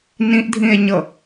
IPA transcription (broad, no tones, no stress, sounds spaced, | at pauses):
n ĩ ʔ dʱ ĩ e̯ ɲ ɤ